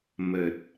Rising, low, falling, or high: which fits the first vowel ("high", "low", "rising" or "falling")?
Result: low